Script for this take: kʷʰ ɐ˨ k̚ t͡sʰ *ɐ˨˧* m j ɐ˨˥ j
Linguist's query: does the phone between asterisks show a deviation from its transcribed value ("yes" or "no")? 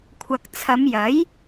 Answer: no